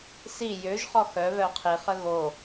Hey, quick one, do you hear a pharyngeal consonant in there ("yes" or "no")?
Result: no